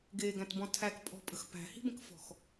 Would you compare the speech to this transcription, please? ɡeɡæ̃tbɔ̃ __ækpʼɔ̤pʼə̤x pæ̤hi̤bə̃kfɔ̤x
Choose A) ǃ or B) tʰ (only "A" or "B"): B